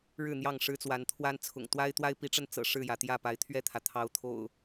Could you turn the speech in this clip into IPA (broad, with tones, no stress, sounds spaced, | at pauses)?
ɻ ɻ̩˥˨ n̪ j ɑ˥˨ ŋ ʂ ɻ̩˦ t͡s w a˨˦ n t̪ʰ w a˦ n t͡sʰ ʊ̰˨˩ ŋ t̪ w a˦ ɪ̯ t̪ w a˦ ɪ̯ p i˨˦ ʈ͡ʂ ə˧ n t͡s ɤ̰˨˩ ʂ ɻ̩˥˨ j ä˩ t̪ j ä˥˨ p a˨˦ ɪ̯ t̪ʰ ɥ ɛ˥˨ t̪ʰ ä˩ t̪ʰ ɑ˨˦ ʊ̯ t̪ʰ o̰˨˩ ʊ̯